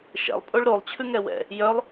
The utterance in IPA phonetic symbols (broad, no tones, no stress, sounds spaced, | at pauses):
ʃ ɛ̰ lˠ pʼ o ɭ ɾ o lˠ t͡ɕʰ ʉ ŋ ɛ w ɛ̰ | j œ lˠ